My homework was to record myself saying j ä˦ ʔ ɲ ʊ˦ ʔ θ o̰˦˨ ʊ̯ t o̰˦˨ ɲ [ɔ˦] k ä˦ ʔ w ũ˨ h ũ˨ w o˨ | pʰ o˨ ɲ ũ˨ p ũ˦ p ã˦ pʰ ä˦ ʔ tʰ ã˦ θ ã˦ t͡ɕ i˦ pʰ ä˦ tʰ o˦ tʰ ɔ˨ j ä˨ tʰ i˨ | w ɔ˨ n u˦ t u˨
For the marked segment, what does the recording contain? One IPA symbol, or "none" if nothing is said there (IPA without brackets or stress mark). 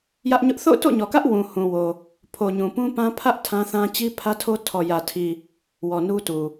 ɔ˨